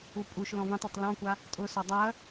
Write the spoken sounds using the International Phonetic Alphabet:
u pʼ u ʃ l ɔ̃ v ẽ tˤ ɔ tˤ l ɔ̃ kʷ a | tʼ ʊ s ɔ dˤ a ɐ̯

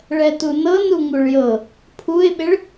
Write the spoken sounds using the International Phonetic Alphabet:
ɭ ɛ t u n ɤ n u ŋ u ɭ j ɤ | pʰ u ɪ̯ ɓ ɪ ɭ

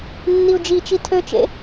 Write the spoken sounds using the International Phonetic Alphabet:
nː i u̯ d͡ʒ i t͡ʃ i tʰ ø t͡ʃ ḛ

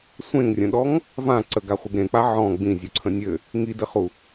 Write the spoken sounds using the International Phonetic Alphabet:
sʷ ẽ ŋ rʲ ə̃ ɗ ɔ ŋ | v ã ǀ ə ɡ a χʷ ɪ ɡ ɾ ẽ k͡p a ʕ ɔ̃ ɡ͡b ĩ zʲ u ǀʰ ə̃ nʲ ɘ | ŋ i d ɘ χ u

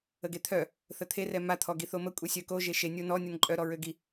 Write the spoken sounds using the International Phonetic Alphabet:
ə ɡ e t̪ʰ œ | θ ə t̪ʰ e r ɛ m a t̪ʰ ɔ ɡ i θ o m ə kʷʼ e sʲ œ k o ʒ e ʃ e nʲ o n ɔ nʲ ɔ n ǃʼ œ ɾ ɔ ɹ ø ɡ i

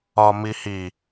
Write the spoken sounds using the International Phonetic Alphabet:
ɒ m i h i

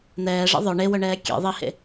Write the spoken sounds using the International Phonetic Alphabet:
n̪ ɛː ʐ ɛ̰ ðˤ œ ɳ e w œ ɳ ɛː kʲ ḛ ðˤ i h ḛ

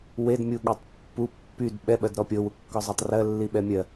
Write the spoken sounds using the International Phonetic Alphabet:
w e d mʲ u ɠ e tˤ pː u pː y d ɓ ɛ ɓ ɜ d ɾ ɔ pʲ ɤ w u kː ɔ zˤ æ tˤ r ɜ lː i ɓ ɛ mʲ ɜ

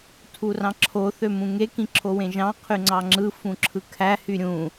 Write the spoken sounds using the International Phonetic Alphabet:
tʰ u r ɑ̃ ǁʰ o θ ø m ũ ŋ e k ĩ ǁʰ o w ẽ ʒ ɑ̃ qʰ y ŋ͡ǀ ɑ ŋ͡ǁ ɯ f ũ ǁʰ ɯ kʰ æ h y ɾʲ ũ

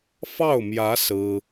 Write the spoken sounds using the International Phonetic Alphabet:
f ɑ˥˩ ʊ̯ m j ä˧˥ s ɹ̩˥

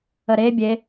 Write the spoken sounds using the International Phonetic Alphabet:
ə ɾ e bʲ e

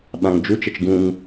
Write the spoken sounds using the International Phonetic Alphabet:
ɓ ã ŋ d͡ʒ u t͡ʃ ə t͡ʃ ɡ ũ ŋ

